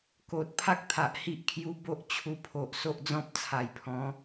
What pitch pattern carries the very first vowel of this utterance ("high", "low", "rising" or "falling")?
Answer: low